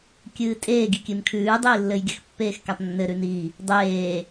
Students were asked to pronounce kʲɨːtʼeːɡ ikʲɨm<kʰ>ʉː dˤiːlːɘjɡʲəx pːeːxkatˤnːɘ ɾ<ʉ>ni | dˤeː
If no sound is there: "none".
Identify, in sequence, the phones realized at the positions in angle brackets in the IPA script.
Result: kʰ, ʉ

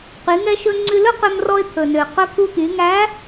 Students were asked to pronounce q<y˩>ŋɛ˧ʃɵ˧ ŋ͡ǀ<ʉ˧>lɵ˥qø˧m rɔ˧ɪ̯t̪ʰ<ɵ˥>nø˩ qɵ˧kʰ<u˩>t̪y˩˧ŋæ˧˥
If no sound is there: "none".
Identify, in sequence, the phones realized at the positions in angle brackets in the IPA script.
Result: y˩˧, ʉ˧, ɵ˩, u˧

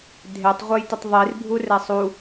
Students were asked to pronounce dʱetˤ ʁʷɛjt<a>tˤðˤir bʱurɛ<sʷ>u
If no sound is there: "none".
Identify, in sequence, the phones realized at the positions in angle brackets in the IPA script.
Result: ə, sˤ

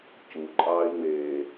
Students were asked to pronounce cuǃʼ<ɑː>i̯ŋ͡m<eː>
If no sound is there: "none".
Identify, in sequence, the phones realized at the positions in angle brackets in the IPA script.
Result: ɑː, eː

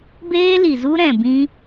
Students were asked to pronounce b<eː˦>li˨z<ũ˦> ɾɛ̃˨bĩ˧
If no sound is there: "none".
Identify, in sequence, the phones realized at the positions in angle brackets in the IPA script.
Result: eː˦, u˦

